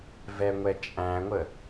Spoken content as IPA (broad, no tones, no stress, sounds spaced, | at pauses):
v ɛ ŋʷ ɛ t͡ʃʼ æ̃ ŋʷ ə